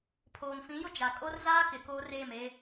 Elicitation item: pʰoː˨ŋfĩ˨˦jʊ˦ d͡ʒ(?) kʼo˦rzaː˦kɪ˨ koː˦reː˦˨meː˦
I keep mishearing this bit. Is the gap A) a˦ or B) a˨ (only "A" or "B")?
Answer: B